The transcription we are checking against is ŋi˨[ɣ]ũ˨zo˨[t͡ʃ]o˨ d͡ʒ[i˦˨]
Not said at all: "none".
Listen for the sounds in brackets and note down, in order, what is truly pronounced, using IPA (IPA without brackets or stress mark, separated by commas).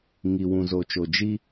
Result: w, t͡ʃ, i˦